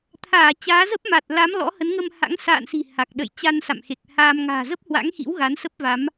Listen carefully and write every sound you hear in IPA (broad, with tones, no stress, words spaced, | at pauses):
t̪ʰaː˧˩ t͡ɕaː˨˦zə˦˥p̚ma˨˩t̚la˨˦m lɔ̰˧˥hə˨˦nŋə˧m ha̰˧˥ŋ sa̰ː˧˨nsi̤˨˩ ha˨˩k̚ ɗə̰˧˨j t͡ɕa˧nsa̰˧˨mxe˨˩k̚haː˧m ŋa̤ː˨˩zə˦˥p̚hwa̰˧˥ŋxḭ˧˥w ɣa˨˦nsə˦˥p̚va˨˦m